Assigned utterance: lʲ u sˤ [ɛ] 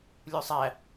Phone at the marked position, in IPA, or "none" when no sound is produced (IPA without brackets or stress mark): æ